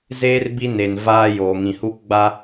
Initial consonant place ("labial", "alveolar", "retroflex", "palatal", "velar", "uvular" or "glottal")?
alveolar